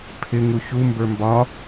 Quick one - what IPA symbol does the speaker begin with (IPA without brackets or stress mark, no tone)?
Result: pʰ